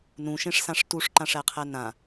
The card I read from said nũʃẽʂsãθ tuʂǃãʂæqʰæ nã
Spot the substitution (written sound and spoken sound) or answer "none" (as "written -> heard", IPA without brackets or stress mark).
θ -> ʂ